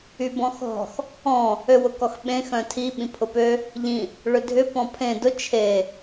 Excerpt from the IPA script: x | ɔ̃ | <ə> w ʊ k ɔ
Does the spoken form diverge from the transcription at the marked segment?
yes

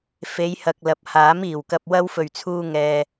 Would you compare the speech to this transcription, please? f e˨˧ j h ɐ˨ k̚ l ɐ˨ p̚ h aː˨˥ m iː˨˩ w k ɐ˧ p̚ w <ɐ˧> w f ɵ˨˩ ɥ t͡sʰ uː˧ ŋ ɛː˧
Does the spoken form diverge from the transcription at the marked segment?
yes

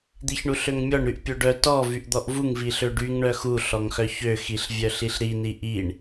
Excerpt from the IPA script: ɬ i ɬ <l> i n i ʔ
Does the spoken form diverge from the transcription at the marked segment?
yes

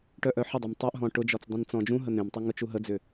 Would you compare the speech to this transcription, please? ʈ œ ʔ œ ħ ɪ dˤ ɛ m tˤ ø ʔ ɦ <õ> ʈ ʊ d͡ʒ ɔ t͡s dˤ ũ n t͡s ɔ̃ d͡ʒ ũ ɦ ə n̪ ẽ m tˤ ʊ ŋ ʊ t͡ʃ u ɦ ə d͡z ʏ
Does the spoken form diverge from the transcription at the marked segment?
yes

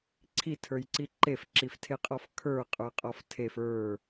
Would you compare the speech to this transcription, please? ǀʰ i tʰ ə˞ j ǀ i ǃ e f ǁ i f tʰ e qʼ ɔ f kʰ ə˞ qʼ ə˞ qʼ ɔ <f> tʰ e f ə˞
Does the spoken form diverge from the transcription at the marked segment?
no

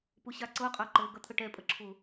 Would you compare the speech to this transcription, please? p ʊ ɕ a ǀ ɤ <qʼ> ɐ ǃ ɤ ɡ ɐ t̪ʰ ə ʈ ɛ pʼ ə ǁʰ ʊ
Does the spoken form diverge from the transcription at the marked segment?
no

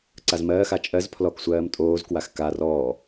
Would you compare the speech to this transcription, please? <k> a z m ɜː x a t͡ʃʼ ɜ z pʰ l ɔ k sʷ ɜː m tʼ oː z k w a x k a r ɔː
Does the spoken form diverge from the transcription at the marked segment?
yes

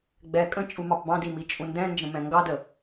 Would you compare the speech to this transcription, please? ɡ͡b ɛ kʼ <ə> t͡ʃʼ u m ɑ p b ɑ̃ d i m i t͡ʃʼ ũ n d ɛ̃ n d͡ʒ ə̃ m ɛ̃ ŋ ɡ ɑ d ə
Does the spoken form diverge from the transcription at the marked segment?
yes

